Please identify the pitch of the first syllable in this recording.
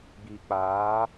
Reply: low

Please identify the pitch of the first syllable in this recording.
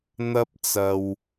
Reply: high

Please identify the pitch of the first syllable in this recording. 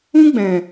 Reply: high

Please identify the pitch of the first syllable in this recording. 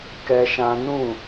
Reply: high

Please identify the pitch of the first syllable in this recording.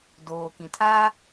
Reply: low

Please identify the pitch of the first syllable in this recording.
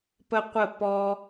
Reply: high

